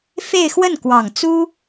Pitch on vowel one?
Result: falling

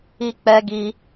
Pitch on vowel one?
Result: high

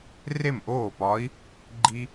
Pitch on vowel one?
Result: falling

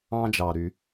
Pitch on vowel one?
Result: high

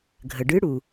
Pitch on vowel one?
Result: low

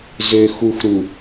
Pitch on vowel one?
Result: low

